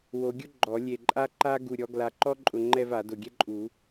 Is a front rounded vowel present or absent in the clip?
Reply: absent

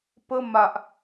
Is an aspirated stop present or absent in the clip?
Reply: absent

